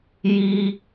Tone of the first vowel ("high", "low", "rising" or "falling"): high